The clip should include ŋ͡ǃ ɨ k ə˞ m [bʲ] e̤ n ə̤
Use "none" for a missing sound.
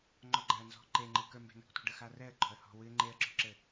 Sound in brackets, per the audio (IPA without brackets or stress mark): b